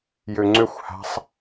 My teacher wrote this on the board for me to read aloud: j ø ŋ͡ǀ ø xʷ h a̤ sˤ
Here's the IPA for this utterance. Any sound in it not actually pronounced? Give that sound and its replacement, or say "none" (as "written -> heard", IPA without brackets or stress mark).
none